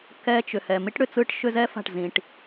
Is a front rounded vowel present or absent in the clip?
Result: present